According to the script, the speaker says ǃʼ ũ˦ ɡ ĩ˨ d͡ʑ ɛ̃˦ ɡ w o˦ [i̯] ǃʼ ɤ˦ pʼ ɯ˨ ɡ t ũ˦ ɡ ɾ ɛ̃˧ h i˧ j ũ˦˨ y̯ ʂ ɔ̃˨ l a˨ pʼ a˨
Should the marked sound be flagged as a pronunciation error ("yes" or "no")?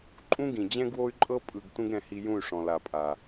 yes